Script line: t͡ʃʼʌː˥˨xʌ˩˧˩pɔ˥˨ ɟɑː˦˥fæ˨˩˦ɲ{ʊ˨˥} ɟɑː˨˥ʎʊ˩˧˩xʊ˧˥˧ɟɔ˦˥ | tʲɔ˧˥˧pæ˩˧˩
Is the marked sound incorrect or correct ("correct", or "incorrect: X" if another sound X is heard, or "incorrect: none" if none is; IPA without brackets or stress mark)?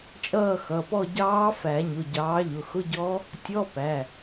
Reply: incorrect: ʊ˩˧˩